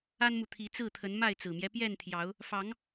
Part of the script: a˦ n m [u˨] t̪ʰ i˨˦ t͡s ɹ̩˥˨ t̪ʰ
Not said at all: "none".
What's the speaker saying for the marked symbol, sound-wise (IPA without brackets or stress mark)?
u˨